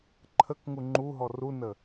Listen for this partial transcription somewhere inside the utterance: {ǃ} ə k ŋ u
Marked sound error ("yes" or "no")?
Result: yes